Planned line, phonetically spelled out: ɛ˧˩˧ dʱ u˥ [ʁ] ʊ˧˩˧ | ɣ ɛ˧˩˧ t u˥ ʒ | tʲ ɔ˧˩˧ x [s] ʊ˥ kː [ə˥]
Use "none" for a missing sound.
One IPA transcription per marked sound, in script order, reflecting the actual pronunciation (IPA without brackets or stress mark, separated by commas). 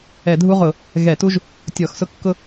ʁ, s, ʊ˥